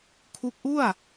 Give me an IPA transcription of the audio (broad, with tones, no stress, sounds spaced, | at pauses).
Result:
kʰ u˦˥ k̚ ʔ u˥˩ a̯